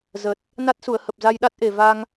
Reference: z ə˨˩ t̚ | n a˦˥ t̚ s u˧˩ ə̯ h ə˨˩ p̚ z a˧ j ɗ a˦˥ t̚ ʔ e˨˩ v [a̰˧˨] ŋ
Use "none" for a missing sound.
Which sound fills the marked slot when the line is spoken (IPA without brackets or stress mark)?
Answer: a˧